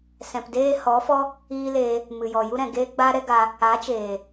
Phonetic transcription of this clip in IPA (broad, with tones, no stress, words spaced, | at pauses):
sɛ̃˨pdeː˦ hɔ˨˦fɔ˦ | iː˦leː˧ | mɨ˨jɔ˨ju˦ɾɛ̃˨ ɡeː˦ɡ͡ba˦ɾɛ˦ɡa˧ | a˨˦t͡ʃeː˨